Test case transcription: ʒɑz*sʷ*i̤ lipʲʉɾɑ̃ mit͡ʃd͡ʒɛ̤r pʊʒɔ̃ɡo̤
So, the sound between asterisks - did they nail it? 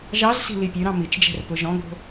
no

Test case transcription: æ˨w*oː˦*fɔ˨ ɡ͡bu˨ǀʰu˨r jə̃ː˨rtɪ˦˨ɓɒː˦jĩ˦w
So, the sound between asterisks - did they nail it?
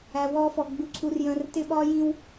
no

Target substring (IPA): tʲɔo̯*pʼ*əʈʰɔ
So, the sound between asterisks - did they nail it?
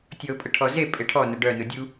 yes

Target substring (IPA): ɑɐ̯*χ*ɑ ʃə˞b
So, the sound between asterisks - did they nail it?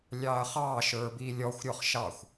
yes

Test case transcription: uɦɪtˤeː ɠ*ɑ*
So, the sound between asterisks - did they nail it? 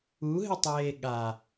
no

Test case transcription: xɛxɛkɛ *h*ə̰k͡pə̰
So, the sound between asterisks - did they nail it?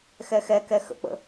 no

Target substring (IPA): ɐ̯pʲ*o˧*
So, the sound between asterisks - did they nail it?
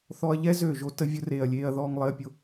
yes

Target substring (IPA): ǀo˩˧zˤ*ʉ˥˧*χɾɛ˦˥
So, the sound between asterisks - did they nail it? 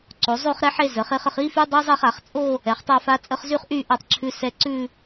yes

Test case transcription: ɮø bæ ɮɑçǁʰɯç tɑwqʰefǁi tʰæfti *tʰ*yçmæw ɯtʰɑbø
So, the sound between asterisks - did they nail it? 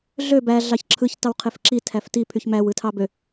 no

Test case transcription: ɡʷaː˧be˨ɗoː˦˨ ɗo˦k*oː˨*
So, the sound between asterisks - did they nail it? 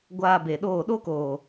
yes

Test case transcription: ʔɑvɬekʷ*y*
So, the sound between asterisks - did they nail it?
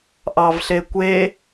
no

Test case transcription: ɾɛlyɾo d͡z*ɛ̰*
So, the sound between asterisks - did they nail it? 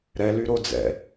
yes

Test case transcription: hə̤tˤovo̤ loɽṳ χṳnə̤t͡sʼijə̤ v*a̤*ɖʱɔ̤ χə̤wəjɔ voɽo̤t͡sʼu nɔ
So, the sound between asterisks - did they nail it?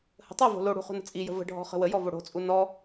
no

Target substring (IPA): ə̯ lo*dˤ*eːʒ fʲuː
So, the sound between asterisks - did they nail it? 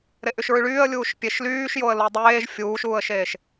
yes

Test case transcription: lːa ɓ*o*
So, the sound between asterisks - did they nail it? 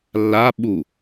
no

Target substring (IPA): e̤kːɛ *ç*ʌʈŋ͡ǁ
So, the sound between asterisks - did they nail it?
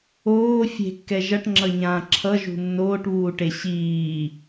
no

